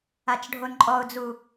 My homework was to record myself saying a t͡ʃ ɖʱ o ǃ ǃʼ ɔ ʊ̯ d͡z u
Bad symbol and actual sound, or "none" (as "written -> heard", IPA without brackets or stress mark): ǃ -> n